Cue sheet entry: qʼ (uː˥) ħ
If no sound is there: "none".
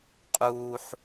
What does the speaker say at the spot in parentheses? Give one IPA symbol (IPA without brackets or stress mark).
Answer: uː˥